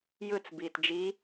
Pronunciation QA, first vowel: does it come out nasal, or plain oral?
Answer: oral